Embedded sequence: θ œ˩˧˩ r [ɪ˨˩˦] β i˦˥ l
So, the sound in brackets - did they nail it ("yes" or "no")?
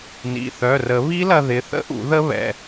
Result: no